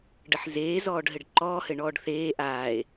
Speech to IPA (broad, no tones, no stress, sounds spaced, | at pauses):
ɖ ə ħ z eː z ɔː ɖ ɦ ɘ ɖ ǃ ɔː h ɘ ɳ ɔː ɖ θ eː ʔ aː e̯